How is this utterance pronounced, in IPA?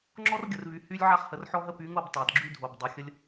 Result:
ŋ͡ǁɔ˦rɡʲə˨rvy˨ hy˦lʲ ʕa˦χhə˨rħɔ˦ɦə˦ py˨˦ŋo˦˨b tˤa˨dɡ͡ǁy˦dʱo˨b dˤa˨xʲə˦lʲ

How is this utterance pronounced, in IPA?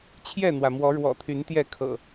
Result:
t͡ɕʰjɛ˥˨n̪wä˩ mwɔ˨˦ɻwɔ̰˨˩t̪ʰy˨˦n t̪jɛ˥˨kʰɤ̰˨˩

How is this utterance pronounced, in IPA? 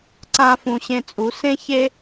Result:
ǀã˧ fũ˨ɕẽ˧t͡sʼu˨˦ sẽ˦çe˦

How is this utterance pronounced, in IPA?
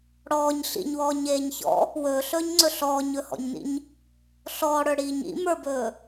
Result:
ɽɔːɲ ɬḭɲwɔːɲeːɲ çɔ̰ | wɵːɬɵːɲŋ͡ǀɵ ɬɔːɲɵhɔ̰ɲnḭɲ | ɬɔːɽə˞ɽiːɲ ḭmə˞bɵː

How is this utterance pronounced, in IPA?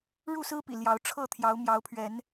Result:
ɻu˥˨sɹ̩˦pḭ˨˩ ljɑ˨˦ʊ̯ ʈ͡ʂʰɤ˥˨t̪ʰjɑ˨˦ʊ̯ mjɑ˨˦ʊ̯pʰɥɛ˨˦n

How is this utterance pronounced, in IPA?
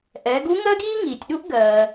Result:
ʔɛ˩˧ɡu˧˥ŋɜ˥ɡiː˥ ŋiː˩tʲɗu˥ʔ ɡɜː˩

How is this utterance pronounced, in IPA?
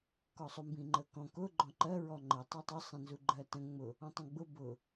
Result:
kɔsˤumbĩŋ͡ǃə kɔ̃ kʊ ɡ͡ǃɔ̃ǃɜ ɹɔŋ͡ǃɜ tˤɜtˤʊ sˤɛ̃nzuɡ͡ǃɜtə̃ ŋ͡mʊ | ɔ̃tˤə̃ɡ͡bʊ bʊ

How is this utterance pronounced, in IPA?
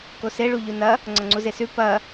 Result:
kose ɭuʎunɐ | ŋ͡ǀɐŋ͡ǀuzesʉ pɐ

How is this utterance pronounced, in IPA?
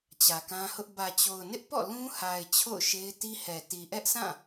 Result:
t͡ɕä˨kã˦hʊ˦ʔ bä˨t͡ɕo˨ʊ̯nɪ˦ʔpɔ̰˦˨ lũ˦ha˨ɪ̯ t͡ɕʰo̰˦˨ʊ̯ʃe˦ɪ̯ti˦hɛ˨ ti˨ʔɛ˦ʔsã˦˨

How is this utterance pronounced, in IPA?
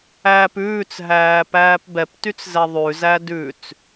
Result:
æːpʉːt͡sɦæː pæːpbɛptyt͡s zɛðˤʉzæ dʉt͡s

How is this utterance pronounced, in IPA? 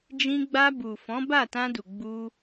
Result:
d͡ʒĩ˧ɡ͡ba˧bu˨ fɔ̃˨˦ba˦˨tã˧du˨ ɡ͡bu˧

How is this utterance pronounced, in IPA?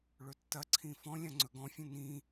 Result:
ɭɵtːɐǀʰĩ fɔ̃ lʲãŋ͡ǀɵɡɔ̃fʲɐ̃ nĩ

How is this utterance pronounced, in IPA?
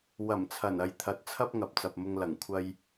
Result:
wɐ˨˩mt͡sʰɐ˨˩nɐ˨j t̪ʰɐ˨˥t̚t͡sʰɐ˥p̚ ŋɐ˨p̚t͡sɐ˨p̚mʊ˧ŋ lɐ˨˩ŋ kʷʰɐ˧j

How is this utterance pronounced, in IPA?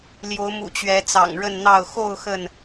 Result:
ljo˨˦ʊ̯mṵ˨˩ t͡ɕɥɛ˨˦t͡sɑ̰˨˩ŋɻə˥˨n n̪ɑ˥˨ʊ̯ xo˥˨ʊ̯ xə˥˨n

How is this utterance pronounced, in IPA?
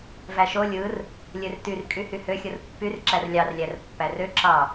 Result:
væʃo lʲɯr | lʲørtyrkʼy hyhøxʲɯr pːyrǁær lʲɑrlʲær pːærø ǁɑ

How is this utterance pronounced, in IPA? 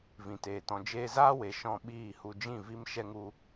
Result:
vĩ˨teː˨ tɔ̃˨d͡ʒeː˧zaː˦we˨ ʃɔ̃˧ɓiː˦˨hu˧ d͡ʒĩ˦˨vi˦m ʃɛ˦ŋu˦

